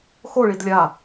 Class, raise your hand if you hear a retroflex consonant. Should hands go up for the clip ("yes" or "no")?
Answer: yes